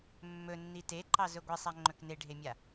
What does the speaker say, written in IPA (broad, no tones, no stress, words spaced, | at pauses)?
mːɵnːi teǃɑzɵ ɡʷɛsˤaŋ͡ǃɵk neɖʱemʲa